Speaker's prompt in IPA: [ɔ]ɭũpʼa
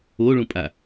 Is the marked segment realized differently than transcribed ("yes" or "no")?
yes